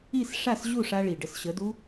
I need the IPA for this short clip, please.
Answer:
i˥˩ s ʂ a˥˩ s ʑ u˥˩ ʂ a˧ ɭ i˩ ɖ ə˧ s ɕ ə˩˥ d u˥

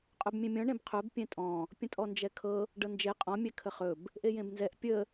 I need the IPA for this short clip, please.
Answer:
qʼ ɵ b mʲ ẽ mʲ ɔ̃ ɳ ẽ b qʰ ɵ b pʲ ɛ̃ tʼ ɔ̃ | pʲ ə̃ tʼ ɔ n d͡ʒ ɛ kʰ ɤ | ɖ ɤ n d͡ʒ e qʼ ɔ̃ mʲ ɛ kʰ ə χ ɵ b | ʔ e j ẽ b n z ɛ ʔ pʲ ə

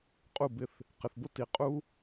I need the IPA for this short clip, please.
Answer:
qʼ u˦˨ b ɪ˧ θ | q ɪ˨ θ b ʊ˦ t i˨ qʼ u˦

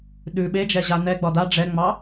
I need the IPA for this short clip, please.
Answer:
ɗ ʉ ɓ e d͡ʒ ɛ ʑ a n ɛ ɡ͡b ɒ d a ɖ͡ʐ ɛ ŋ͡m ɑ

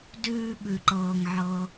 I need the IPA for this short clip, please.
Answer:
d ʉː˨ ɓ ʉ˩ ǃ ɤː˩ ŋ ʕ ɤ˩

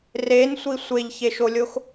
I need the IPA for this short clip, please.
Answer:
r e n sʷ i sʷ e ʎ ç e ʃ o lʲ o x

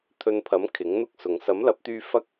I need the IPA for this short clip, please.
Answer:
t̪ʰ ɵ˧ n pʰ ɐ˨˥ m kʰ ɪ˨˥ ŋ n̪ ʊ˥ k̚ s ʊ˨ ŋ s ɐ˨˥ m l ɐ˨˥ p̚ t̪ yː˧ f ɐ˥ k̚

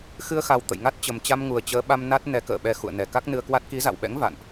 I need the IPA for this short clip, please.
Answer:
x ɨ˧ ə̯ x a˨˩ w t̪ ə̰˧˨ j ŋ a˦˥ t̚ t͡ɕ ə˨˩ m t͡ɕ a˧ m ŋ u˨˩ ə̯ t͡ɕ əː˨˦ ɓ a˧ m n a˦˥ t̚ n ɛ˨˦ k ə̰ː˧˨ ɓ ɛ˧ x ṵ˧˨ ə̯ n ɛ˨˩ k a˦˥ k̚ n ɨ˧ ə̯ k w a˦˥ t̚ k i˨˦ z a̰˧˨ w ɓ ɛ̰˧˥ ŋ v a̰˧˨ n ʔ

